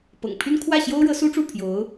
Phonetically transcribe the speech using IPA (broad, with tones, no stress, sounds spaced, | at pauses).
p ɤ̰˨˩ ŋ pʰ y˥ n kʰ w ä˥˩ ɕ j o˥ ʊ̯ ɻ ɤ˧˥ s u˥ ʈ͡ʂ u˥˩ pʰ j o˧˥ ʊ̯